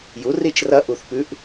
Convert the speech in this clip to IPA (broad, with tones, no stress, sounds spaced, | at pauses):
j u˩˥ r i˥˩ t͡ʃ r ɐ˧˥ ʔ u˧˩ θ p ʉ˧˥ ʔ